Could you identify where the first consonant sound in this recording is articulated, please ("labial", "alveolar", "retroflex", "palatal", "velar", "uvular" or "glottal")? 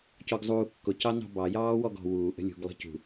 palatal